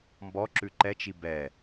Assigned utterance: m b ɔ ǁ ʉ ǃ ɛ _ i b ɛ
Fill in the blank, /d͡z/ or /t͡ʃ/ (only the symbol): t͡ʃ